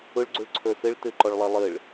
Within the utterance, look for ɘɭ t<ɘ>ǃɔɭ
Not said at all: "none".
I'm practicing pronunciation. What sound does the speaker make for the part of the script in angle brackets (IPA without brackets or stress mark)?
ɘ